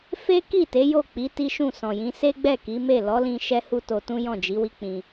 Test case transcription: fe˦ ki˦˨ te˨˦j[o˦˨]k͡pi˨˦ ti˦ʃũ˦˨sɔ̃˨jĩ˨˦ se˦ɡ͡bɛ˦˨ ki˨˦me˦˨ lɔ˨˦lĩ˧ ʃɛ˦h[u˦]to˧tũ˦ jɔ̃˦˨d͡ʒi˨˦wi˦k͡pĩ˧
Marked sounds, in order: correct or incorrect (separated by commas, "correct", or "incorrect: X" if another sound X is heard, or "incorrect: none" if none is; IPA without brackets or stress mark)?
correct, correct